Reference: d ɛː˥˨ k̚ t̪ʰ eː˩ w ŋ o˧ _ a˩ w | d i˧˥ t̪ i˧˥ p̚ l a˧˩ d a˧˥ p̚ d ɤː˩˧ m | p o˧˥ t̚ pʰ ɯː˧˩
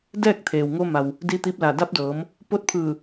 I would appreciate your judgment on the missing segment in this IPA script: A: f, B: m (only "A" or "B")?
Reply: B